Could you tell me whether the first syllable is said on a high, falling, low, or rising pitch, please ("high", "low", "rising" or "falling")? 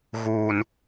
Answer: low